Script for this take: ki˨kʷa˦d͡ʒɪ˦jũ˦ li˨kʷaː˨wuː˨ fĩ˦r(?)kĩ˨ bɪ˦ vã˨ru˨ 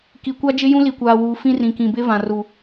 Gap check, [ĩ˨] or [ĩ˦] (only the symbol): ĩ˨